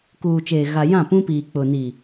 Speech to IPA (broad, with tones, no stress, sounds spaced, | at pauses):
k uː˨ t͡ʃ eː˨ ɣ a˨ j ã˦˨ p ũ˦ p iː˨ k͡p ʊ˨ n i˨